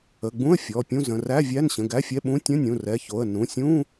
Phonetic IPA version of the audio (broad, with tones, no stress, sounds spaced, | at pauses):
ə˩˧˩ ɡ͡b ũ˧˥˧ ə̯ fʲ ɔ˩˧˩ pʲ ũ˧˥˧ z ə̃˩˧˩ r æ˧˥˧ vʲ æ˧˥˧ n ɕ ə̃˩˧˩ ɡ æ˧˥˧ fʲ ɛ˧˥˧ ɓ ũ˧˥˧ tʲ ə̃˧˥˧ nʲ ũ˩˧˩ r ɛ˩˧˩ ç o˩˧˩ ə̯ n ũ˩˧˩ sʲ ũ˧˥˧